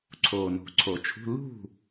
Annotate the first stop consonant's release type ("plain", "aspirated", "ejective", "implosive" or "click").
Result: click